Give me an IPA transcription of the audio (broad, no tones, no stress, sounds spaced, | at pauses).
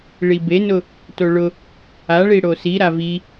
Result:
ɭ i b e n ʊ | t o ɭ ʊ | a ɭ i ɽ o s i ɾ a v i